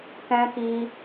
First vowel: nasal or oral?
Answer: nasal